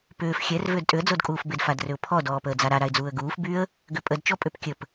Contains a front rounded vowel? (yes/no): yes